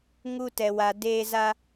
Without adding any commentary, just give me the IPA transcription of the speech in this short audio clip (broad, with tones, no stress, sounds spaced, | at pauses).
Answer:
ŋ u˦ t ɛ˧ w a˧ d eː˦ z a˦